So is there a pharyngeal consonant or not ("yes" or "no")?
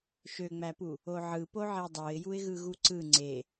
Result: yes